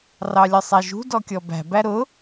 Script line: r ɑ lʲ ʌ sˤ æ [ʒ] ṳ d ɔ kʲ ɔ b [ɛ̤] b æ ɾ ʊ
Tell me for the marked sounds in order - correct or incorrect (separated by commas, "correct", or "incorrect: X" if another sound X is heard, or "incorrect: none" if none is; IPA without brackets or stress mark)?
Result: correct, incorrect: æ̤